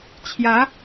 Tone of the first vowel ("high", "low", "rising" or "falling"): rising